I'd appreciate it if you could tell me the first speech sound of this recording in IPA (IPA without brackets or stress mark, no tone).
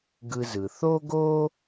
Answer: ɡ